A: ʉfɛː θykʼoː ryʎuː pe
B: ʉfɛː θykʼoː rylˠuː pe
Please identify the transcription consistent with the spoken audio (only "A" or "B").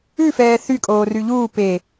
A